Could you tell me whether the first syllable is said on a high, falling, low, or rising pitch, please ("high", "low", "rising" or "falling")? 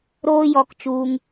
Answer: high